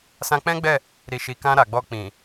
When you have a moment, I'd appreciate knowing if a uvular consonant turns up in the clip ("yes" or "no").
no